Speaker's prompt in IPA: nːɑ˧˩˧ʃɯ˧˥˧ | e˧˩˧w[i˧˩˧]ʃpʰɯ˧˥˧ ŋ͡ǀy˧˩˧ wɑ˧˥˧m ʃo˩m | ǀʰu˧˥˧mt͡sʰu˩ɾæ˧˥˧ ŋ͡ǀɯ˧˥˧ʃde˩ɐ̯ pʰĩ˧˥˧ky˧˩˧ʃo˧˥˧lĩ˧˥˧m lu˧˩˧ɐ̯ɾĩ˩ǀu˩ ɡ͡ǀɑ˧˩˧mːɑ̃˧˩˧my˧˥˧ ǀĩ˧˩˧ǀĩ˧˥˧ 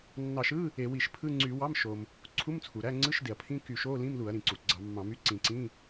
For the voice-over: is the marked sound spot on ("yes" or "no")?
yes